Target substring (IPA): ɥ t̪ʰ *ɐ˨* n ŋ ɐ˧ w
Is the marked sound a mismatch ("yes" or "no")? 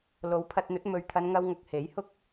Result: yes